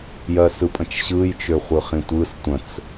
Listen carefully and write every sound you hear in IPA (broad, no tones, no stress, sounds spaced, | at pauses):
j ɜ s ɯ pʼ ə̃ t͡ʃ ɕ ɯ j t͡ʃ ø χʷ ɯ χ ĩ tʷ ɯ s tʷ ə̃ t͡s